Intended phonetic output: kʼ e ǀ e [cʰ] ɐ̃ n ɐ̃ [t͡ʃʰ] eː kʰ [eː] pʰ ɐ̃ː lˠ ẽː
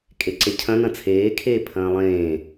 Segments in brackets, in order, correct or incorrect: correct, incorrect: t͡sʰ, correct

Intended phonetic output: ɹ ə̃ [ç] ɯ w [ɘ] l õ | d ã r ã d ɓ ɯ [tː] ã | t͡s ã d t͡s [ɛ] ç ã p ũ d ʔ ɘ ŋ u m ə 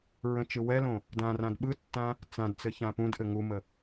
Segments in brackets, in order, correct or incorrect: incorrect: t͡ʃ, incorrect: ɛ, correct, incorrect: ɘ

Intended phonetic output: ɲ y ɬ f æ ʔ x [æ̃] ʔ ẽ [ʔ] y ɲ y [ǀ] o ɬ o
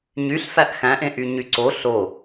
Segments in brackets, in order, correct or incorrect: correct, correct, correct

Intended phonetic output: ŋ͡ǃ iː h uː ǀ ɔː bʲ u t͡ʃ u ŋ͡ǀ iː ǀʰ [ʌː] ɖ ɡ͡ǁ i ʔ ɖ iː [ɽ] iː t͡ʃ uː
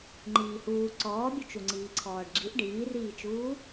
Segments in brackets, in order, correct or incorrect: incorrect: ɔː, incorrect: r

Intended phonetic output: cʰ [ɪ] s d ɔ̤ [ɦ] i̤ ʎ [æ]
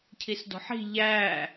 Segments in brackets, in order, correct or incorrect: incorrect: i, incorrect: ħ, correct

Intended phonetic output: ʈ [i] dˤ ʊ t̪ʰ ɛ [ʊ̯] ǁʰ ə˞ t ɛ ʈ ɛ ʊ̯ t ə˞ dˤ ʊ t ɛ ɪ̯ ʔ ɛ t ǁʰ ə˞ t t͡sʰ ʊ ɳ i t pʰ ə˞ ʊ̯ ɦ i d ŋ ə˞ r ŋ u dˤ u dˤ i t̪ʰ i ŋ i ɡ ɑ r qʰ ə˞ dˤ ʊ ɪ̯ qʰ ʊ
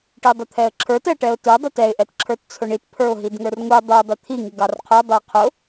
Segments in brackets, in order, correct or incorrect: correct, incorrect: ə̯

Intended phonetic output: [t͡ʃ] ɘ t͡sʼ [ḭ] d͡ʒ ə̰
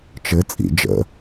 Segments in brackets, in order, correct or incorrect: correct, correct

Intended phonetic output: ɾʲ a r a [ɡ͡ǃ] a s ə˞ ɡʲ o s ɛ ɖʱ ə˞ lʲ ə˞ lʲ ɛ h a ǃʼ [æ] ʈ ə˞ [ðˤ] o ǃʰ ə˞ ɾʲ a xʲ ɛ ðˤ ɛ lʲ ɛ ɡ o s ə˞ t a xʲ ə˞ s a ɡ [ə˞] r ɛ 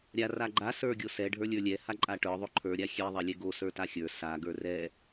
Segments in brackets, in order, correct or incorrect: correct, incorrect: a, correct, correct

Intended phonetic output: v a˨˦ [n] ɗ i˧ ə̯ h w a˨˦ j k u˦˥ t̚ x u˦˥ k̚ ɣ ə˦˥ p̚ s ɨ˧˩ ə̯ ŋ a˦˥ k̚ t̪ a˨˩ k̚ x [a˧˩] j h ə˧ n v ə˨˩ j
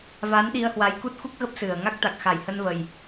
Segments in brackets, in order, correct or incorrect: correct, correct

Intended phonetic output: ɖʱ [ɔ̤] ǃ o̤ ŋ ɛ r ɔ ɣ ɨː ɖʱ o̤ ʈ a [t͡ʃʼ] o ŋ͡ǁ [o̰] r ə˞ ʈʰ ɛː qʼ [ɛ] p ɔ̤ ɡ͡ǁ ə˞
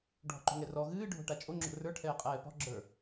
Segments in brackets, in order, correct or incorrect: correct, correct, correct, incorrect: ɛː

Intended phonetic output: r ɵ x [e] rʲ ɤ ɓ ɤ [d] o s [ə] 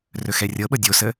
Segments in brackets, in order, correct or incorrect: incorrect: ɛ, incorrect: dʲ, correct

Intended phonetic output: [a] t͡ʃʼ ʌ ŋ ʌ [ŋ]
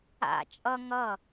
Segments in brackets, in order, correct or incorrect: incorrect: a̰, incorrect: none

